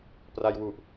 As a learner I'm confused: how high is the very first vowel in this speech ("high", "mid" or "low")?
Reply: low